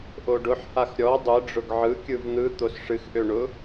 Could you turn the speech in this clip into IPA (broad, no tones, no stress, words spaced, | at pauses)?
ʔoɖʊħhax ɾʲɔ dˤɯɖ͡ʐʊɡ ʕɯkʲɯv n̪ɯ t̪osʂɨxʔø ɳʊ